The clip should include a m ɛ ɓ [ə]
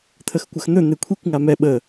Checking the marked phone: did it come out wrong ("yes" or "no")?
no